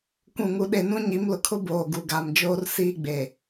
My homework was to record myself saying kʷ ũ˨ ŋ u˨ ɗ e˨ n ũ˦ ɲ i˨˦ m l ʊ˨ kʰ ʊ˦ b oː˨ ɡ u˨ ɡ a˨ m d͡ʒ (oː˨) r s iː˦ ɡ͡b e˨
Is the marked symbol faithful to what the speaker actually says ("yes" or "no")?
no